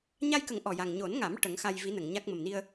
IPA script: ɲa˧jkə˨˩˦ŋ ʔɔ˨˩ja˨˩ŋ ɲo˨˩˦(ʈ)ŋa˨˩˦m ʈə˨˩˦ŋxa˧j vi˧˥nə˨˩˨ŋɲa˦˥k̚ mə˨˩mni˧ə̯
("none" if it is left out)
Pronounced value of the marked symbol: n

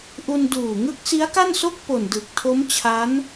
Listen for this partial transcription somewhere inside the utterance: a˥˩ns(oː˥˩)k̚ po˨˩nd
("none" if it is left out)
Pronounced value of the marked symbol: o˥˩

